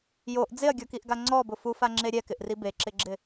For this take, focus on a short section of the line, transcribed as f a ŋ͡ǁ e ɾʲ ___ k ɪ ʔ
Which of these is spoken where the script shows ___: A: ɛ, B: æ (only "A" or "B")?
A